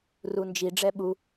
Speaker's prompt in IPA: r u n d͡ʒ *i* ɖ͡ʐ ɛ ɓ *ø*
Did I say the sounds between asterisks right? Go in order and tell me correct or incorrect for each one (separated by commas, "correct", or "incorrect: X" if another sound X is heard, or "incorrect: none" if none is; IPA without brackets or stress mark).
correct, incorrect: u